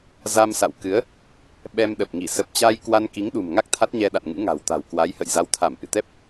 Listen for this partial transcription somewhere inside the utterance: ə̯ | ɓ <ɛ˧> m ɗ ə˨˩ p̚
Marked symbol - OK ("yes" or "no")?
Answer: yes